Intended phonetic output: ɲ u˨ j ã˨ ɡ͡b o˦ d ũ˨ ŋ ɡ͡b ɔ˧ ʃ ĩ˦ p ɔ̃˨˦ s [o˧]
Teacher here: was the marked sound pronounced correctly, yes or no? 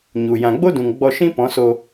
yes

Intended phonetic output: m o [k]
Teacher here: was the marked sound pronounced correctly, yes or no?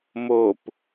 no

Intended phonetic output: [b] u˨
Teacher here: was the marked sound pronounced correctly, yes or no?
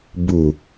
yes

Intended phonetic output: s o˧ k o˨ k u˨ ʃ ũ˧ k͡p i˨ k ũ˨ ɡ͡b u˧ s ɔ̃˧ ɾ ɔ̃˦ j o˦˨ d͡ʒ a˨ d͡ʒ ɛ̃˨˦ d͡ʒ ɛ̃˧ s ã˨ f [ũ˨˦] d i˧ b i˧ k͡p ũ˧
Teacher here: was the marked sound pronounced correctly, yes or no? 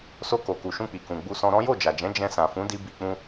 yes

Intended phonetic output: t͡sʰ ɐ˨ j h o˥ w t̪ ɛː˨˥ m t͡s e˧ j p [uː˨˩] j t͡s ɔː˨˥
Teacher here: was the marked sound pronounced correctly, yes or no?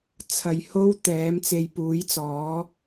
no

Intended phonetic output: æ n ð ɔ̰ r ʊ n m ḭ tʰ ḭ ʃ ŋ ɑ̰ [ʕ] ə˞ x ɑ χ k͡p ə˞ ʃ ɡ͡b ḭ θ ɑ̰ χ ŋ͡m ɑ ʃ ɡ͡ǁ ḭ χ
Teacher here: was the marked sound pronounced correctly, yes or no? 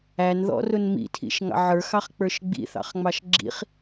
yes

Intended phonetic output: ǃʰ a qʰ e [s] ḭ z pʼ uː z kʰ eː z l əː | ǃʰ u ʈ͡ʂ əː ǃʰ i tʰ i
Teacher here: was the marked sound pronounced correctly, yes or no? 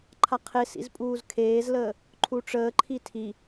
yes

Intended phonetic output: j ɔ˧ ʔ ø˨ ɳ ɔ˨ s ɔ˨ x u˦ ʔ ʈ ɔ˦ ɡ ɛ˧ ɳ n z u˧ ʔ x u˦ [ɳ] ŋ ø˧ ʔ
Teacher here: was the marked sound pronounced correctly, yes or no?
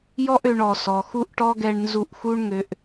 yes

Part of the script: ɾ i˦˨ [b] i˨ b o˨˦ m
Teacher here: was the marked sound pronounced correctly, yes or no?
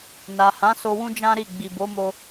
no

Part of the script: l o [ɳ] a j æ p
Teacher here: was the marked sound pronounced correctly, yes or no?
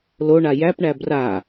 yes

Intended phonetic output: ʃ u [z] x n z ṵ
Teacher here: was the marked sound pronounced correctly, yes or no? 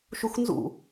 no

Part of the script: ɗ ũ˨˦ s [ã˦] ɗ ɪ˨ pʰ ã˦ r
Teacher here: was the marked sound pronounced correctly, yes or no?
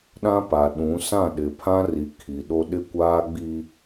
no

